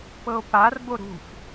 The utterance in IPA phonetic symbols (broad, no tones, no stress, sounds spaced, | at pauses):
p ɤ o̯ p a r b o ɾ ṳ f